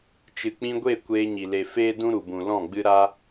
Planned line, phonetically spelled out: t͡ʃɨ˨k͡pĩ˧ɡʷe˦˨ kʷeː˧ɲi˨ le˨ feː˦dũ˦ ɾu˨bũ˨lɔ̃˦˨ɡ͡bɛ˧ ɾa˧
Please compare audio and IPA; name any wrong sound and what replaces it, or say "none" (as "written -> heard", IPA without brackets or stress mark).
ɛ˧ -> ɨ˧